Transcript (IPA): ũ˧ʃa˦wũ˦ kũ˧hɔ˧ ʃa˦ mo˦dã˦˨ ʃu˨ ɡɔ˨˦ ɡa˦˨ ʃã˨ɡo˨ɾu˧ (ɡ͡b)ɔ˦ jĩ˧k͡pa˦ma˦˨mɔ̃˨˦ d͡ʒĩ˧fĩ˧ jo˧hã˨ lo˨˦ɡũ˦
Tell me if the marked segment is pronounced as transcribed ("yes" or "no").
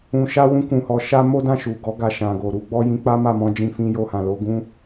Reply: yes